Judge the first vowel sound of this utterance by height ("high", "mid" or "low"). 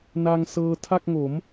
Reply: low